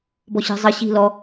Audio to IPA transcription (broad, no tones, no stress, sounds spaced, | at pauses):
b ɔ ɕ i̤ zˤ ɘ ɕ i̤ l ɔ